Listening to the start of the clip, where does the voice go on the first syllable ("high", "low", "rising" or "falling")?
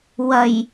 low